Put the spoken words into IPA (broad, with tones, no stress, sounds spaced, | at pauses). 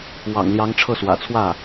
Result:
w ɑ̰˨˩ ŋ l j ɑ˧˥ ŋ ʈ͡ʂʰ ɤ˥˩ s w ä̰˨˩ t͡sʰ w ä˥˩